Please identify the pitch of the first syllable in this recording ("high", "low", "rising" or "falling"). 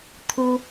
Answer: high